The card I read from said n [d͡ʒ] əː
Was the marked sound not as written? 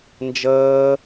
no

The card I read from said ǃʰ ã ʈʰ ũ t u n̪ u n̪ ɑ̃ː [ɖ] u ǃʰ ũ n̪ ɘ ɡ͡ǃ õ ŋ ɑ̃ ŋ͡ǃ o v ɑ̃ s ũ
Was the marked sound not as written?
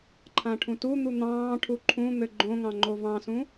yes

